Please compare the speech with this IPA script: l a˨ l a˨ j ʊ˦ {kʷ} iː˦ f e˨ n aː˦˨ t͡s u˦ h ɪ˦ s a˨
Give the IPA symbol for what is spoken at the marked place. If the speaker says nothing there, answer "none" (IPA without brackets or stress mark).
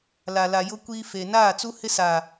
kʷ